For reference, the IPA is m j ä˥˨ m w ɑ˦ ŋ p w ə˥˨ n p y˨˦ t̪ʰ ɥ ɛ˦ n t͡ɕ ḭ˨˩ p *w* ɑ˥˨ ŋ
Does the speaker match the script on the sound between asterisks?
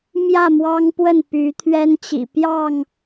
no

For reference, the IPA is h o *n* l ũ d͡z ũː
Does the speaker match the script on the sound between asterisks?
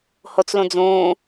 no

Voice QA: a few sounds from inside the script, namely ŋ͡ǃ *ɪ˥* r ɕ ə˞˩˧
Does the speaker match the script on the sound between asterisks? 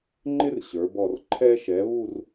yes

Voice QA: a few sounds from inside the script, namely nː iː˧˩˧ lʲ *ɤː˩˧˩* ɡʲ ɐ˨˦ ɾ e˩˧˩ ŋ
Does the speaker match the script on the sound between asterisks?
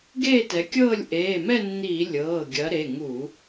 yes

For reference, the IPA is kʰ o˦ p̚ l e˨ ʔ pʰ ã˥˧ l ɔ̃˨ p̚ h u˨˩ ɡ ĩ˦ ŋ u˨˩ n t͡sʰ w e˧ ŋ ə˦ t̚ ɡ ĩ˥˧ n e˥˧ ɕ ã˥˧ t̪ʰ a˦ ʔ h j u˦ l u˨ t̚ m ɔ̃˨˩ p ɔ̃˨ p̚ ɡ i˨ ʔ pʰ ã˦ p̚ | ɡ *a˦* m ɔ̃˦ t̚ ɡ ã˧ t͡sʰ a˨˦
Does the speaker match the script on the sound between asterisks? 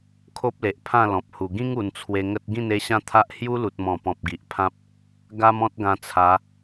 yes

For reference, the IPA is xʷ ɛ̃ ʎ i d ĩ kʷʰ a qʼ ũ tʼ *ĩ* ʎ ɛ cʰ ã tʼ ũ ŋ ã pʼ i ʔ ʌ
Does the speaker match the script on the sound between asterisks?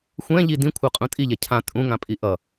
no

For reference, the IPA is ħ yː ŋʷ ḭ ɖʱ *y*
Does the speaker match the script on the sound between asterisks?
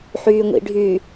yes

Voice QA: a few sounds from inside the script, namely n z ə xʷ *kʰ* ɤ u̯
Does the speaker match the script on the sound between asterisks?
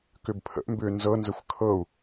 yes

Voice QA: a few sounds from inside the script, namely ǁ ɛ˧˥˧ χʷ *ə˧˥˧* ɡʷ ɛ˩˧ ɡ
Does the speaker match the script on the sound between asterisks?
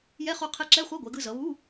no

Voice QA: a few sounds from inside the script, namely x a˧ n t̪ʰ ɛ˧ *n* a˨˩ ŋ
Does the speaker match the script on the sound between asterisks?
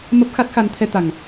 no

